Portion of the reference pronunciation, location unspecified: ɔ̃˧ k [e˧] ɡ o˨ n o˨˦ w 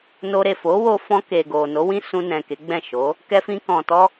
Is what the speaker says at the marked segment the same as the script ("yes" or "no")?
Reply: no